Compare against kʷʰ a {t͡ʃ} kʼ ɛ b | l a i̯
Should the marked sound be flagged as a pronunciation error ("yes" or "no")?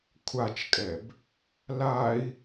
no